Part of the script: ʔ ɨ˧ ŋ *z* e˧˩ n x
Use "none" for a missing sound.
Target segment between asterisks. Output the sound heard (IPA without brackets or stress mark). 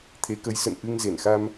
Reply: z